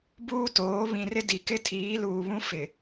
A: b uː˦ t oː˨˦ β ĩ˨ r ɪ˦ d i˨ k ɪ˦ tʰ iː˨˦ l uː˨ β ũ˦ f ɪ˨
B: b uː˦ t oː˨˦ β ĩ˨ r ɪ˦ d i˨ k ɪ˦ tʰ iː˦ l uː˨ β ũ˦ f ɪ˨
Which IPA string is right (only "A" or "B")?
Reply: A